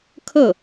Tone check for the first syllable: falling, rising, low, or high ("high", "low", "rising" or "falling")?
falling